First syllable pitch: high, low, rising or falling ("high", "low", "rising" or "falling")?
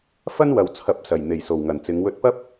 high